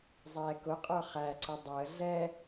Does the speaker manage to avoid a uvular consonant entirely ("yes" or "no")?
no